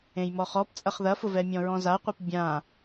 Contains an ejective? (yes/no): yes